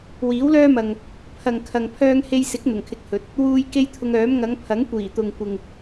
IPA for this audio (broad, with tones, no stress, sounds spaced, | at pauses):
w iː˨˥ w l œː˥ m ɐ˨ ŋ | pʰ ɐ˨ ŋ kʰ ɐ˨ ŋ pʰ œː˧ ŋ h e˧ j s ɪ˨˥ k̚ n̪ ʊ˨˩ ŋ kʰ ɪ˧ k̚ h ɵ˨˥ t̚ | w uː˧ j k e˥ j t̪ʰ ʊ˧ ŋ œː˨˥ m ŋ ɐ˨˧ ŋ pʰ ɐ˨˥ ŋ kʷ iː˨˩ t̪ ʊ˨ ŋ kʷ ɪ˨ ŋ